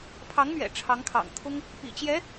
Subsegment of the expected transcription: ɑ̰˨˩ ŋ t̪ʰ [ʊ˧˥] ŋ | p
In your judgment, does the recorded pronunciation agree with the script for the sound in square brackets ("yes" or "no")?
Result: no